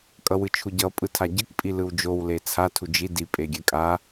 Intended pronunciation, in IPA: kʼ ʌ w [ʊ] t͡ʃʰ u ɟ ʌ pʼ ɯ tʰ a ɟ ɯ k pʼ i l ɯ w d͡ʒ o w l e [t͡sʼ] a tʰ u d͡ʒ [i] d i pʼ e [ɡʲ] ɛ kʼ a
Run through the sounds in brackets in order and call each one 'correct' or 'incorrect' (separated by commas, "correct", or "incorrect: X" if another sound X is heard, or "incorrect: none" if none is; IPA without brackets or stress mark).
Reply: incorrect: ɯ, incorrect: t͡sʰ, correct, correct